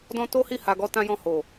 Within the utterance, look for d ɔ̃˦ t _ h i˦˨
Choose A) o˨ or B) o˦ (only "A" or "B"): B